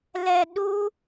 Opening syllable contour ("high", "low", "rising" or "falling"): low